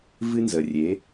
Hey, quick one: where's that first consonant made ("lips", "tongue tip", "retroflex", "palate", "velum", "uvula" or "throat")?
lips